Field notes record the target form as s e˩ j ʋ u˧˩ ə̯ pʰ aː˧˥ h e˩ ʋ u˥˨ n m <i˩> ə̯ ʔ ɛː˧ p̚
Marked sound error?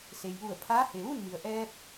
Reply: no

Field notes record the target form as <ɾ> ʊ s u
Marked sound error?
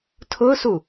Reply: yes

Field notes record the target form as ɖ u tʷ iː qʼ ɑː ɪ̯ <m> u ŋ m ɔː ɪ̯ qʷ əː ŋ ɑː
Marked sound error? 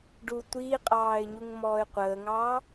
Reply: yes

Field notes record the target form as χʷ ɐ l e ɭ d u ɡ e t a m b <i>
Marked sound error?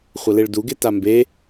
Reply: yes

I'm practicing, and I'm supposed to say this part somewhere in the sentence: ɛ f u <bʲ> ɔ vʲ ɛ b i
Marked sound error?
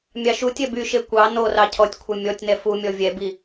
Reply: yes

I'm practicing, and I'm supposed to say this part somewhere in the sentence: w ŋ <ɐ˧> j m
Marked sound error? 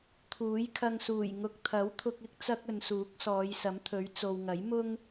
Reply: yes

